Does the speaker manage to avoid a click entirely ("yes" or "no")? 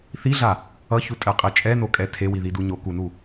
yes